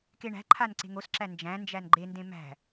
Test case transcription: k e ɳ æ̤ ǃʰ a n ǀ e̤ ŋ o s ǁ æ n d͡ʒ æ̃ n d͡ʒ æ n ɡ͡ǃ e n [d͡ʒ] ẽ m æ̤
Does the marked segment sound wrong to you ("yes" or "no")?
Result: yes